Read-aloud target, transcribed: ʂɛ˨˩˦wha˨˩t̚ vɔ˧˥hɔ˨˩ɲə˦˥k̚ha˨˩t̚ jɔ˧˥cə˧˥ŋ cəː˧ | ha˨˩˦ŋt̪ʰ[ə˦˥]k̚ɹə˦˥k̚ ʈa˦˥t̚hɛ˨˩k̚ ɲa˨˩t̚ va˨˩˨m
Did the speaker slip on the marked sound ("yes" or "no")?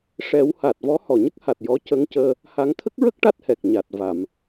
no